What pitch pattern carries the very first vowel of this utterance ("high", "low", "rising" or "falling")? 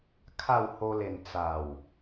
falling